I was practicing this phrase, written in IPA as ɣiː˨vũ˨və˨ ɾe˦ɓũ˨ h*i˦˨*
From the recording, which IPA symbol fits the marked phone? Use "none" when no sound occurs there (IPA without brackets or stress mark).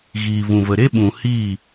i˦˨